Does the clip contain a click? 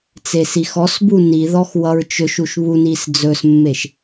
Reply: no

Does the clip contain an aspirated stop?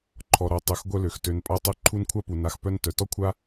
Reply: yes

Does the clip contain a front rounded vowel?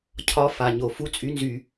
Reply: yes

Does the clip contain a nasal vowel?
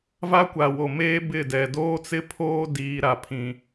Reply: yes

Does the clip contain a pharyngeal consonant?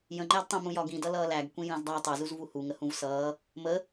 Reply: no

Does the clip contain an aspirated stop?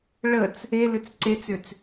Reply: no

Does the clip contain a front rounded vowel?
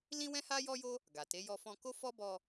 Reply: no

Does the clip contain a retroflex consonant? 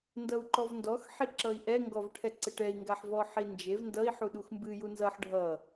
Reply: yes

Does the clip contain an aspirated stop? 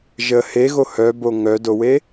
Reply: no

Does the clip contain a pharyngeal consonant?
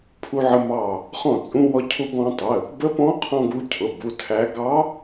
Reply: yes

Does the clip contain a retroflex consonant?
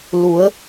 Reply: no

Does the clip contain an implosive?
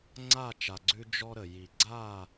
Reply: no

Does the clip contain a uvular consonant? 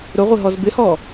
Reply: yes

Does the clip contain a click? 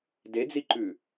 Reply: yes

